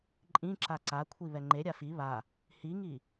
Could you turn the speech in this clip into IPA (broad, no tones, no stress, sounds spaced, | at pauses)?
ǃʼ ĩ ǁ a ǀ a kʷʰ i β ɛ ŋ͡ǃ e ɾʲ a f i β a | h i ŋ i